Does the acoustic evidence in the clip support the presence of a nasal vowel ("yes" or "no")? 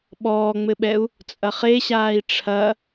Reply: no